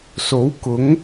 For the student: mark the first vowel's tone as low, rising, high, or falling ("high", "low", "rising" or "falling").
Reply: rising